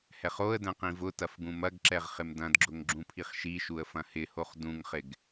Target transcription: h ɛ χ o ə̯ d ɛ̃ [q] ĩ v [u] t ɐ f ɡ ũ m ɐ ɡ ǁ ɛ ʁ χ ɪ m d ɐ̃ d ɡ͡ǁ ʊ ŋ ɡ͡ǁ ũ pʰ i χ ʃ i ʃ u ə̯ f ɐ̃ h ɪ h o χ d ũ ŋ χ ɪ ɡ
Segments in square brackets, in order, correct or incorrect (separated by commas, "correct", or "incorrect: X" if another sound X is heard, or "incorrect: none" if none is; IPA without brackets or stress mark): correct, incorrect: ʊ